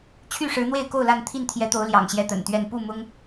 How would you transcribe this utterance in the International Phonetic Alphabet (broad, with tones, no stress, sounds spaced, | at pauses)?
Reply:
t͡ɕʰ y˥˨ ʂ ɻ̩˨˦ n̪ w e˥˨ ɪ̯ k o˥˨ ʊ̯ l a˥˨ n t̪ʰ i˥˨ n t̪ʰ j ɛ˨˦ t̪ o˨˦ ʊ̯ l j ɑ̰˨˩ ŋ ɕ j ɛ˥˨ t̪ ə̰˨˩ n t̪ ɥ ɛ˥˨ n p u˥˨ m ʊ˦ ŋ